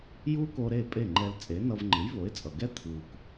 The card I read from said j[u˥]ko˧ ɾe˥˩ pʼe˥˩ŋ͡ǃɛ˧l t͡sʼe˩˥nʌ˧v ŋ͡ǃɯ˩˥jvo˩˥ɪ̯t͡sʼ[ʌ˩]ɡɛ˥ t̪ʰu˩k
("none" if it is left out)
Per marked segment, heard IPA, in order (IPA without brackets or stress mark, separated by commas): u˥, ʌ˩